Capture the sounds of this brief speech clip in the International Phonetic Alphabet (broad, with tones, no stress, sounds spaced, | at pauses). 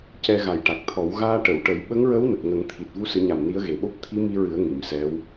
c ɛ˧ ɣ a˨˩ j ʈ a˨˩ k̚ t̪ʰ ɔ˨˩˦ w ɣ aː˧ ʈ ə˨˩˨ w ʈ ə˨˩˦ j ɓ ə˧˥ ŋ ɹ ə˧˥ w n ə˨˩ k̚ ŋ ə˨˩˦ ŋ t̪ʰ i˨˩ t̚ v u˧ s ɨ˨˩˦ ɲ a˨˩ m n i˧˥ ə̯ ɣ e˨˩ ɓ o˦˥ p̚ t̪ʰ i˧˥ m i˧ ɹ ɨ˨˩˦ ə̯ ŋ i˨˩˨ m s ɛ˧˥ w